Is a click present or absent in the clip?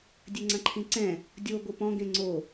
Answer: present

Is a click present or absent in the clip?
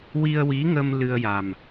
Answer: absent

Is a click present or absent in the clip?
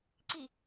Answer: present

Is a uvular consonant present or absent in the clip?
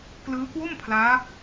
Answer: absent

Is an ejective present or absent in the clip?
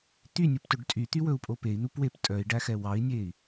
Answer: present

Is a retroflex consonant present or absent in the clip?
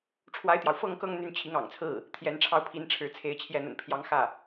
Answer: present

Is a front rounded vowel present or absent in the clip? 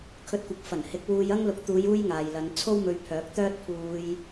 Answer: present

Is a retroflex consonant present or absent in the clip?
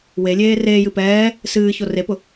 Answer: absent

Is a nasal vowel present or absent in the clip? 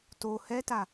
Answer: absent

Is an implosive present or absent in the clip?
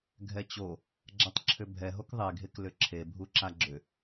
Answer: absent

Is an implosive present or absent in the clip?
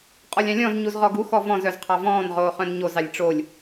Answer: absent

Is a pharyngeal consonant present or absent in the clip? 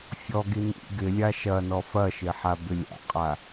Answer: present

